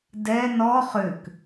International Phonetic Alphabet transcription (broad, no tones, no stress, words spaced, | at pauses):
dɛ nɔ χʏk